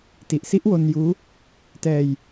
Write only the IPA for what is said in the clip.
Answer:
t i˨˩ ʔ s i˦˥ ʔ w o˧ n j uː˦˥ | t ɛː˧ j

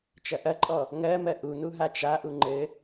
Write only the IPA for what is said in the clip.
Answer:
t͡ʃ ɐ ʔ ɐ ǃʼ ɔ | ŋ ɜ m ɜ ʔ u n u ɦ a t͡ʃ a ʔ u ŋ͡ǃ ɘ

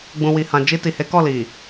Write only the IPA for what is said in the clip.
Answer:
ɡ͡b ũ˨ w i˨ h ã˨ d͡ʒ i˧ t i˨ h e˨˦ k ɔ˦˨ l i˨

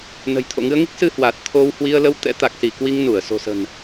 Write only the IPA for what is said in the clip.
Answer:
n ə̤˨˩ j t̪ʰ o̰˧˨ ŋ ɨ˧ ə̯ ŋ i˦˥ k̚ s ɨ˧ h w a˨˩ t̚ t̪ʰ o˧ w h w i˧ ə̯ l ə˧ w t̪ ɛ̰˧˥ t̪ a˨˩ k̚ s i˧˩ k w i˧ ŋ n u˧˩ ə̯ s o̤˨˩ s ə̤˨˩ n

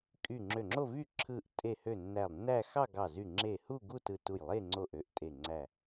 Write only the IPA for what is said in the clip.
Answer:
kʼ y˧˩ ŋ͡ǁ ø˧˩ ŋ͡ǁ o˥˧ v y˥˧ ǁʰ ɯ˧˩ ʔ tʼ e˧˩ h ø˧˩ nː æ˧˩ lˠ nː æ˥˧ x ɑ˥˧ ɡ ɑ˧˩ z y˧˩ ŋ͡ǁ e˧˩ h u˥˧ ɡ u˥˧ t ɯ˧˩ t u˧˩ j lˠ e˥˧ ŋ͡ǀ o˧˩ ʔ ø˧˩ ʔ tʼ e˧˩ ŋ͡ǀ æ˧˩

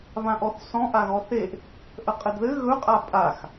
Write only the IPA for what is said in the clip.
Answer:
β ã ʔ ɔ θ s ɔ̃ ʔ a ɣ ɔ θ e ʔ | ʔ ə qʼ ɘ d ð ɘ ɣ ɵ qʼ a pʼ a x

